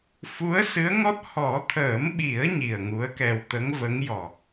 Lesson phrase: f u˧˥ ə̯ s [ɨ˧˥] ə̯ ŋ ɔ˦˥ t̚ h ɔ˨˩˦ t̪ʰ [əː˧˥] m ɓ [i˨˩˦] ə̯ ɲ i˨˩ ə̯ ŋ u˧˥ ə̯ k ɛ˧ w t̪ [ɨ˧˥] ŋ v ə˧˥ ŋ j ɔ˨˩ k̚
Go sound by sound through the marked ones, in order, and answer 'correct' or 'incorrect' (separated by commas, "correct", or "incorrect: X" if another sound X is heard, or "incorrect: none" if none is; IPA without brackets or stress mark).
correct, incorrect: əː˨˩˦, correct, incorrect: ə˧˥